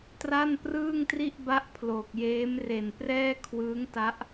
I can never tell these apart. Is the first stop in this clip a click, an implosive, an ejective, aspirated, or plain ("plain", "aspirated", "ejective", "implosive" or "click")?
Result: plain